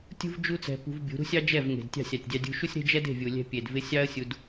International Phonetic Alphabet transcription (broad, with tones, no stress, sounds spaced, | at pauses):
tʲ ṳ˦ v d͡ʒ u˦ t͡s ɛ̤˧ p ṳ˧ v bʲ ṳ˨˦ ɾ ṳ˦ sʲ ɑ˦ d͡ʒ ɛ˦˨ v ŋ e̤˨ d tʲ ɑ̤˦˨ sʲ ɑ˨ tʲ dʲ ɑ˧ dʲ ṳ˧ ʃ u˦ sʲ ɾ e̤˦ d͡ʒ ɛ˦ d e̤˦˨ vʲ u˨ lʲ ɛ̤˧ pʲ e˨ d v ɪ˧ sʲ ɑ˦ ə̯ sʲ u˧ d